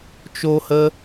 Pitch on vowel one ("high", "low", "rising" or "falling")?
high